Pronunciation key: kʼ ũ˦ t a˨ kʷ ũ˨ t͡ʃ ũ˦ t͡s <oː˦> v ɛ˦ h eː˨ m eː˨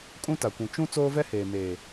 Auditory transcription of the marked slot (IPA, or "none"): oː˦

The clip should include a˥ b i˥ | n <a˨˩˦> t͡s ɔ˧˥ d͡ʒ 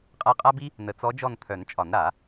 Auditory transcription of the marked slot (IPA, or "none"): ə˨˩˦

